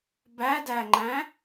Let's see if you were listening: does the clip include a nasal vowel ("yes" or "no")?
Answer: yes